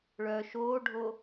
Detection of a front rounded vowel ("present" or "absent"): present